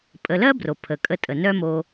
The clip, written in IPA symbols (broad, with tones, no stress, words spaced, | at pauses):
pʼə˨lɜ˥bro˩ pʰə˩kʼə˨tʼə˩ nœ˦mo˨